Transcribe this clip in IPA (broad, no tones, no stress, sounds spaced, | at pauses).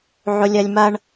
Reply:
ʕ ʊ lʲ ɐ lʲ m ɐ ɳ